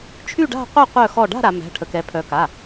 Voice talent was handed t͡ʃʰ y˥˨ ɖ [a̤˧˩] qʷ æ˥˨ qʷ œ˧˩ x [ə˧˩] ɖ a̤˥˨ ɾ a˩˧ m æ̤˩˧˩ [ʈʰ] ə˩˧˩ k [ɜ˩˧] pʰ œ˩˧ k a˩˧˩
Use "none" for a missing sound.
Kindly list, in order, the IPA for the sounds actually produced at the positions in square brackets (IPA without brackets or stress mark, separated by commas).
a̤˥˨, ɔ˧˩, ʈʰ, ɛ˩˧